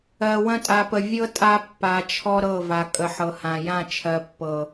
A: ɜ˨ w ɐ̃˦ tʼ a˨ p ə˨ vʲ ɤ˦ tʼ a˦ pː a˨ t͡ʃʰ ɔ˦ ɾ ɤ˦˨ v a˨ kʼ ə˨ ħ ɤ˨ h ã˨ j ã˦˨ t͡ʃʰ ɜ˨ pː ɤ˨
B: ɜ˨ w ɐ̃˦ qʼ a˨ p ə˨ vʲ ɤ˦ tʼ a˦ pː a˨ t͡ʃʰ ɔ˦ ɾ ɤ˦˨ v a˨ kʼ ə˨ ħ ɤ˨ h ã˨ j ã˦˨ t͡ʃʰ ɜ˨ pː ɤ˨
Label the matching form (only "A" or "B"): A